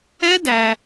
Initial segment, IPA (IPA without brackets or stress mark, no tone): ɛ